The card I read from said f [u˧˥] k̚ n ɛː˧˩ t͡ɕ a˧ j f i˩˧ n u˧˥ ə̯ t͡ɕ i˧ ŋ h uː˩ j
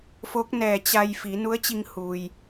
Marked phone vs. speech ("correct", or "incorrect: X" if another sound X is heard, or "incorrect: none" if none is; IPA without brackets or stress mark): incorrect: o˧˥